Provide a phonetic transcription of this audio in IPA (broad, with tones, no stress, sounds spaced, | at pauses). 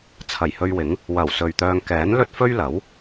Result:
t͡sʰ ɐ˨˩ j h ɵ˧ ɥ w ɪ˨˥ ŋ | w ɐ˨˩ w s ɵ˨ ɥ t̪ œː˧ ŋ k ɛː˨˥ n l ɵ˥ t̚ f ɵ˥ ɥ l ɐ˨˥ w